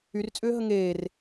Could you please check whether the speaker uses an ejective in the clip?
yes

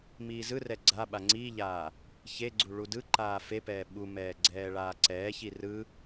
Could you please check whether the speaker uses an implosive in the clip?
yes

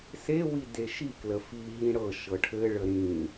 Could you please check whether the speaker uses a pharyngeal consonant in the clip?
no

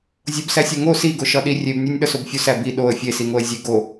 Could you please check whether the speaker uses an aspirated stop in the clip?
no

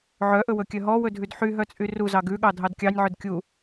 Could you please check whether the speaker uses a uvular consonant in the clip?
no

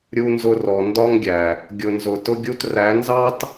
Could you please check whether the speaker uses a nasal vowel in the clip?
no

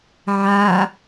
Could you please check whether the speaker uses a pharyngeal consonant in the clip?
yes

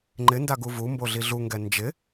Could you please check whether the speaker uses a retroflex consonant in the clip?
no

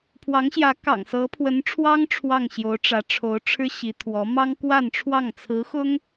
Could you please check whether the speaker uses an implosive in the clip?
no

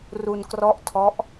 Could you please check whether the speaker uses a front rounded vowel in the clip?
no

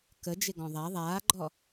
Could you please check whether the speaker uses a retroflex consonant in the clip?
no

